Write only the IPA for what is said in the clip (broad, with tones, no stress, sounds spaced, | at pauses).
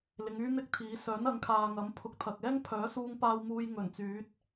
l ɪ˨˧ ŋ yː˥ n̪ ɪ˥ k̚ t̪ʰ iː˨˥ s œː˨˥ n ɐ˨˥ ŋ kʰ aː˨ ŋ ɐ˨˥ m pʰ ʊ˨ k̚ t̪ʰ ɐ˨ k̚ ɛː˥ ŋ pʰ œː˨˥ s uː˧ ŋ p aː˧ w m uː˧ j ŋ ɵ˨˩ n t͡s yː˨˥ t̚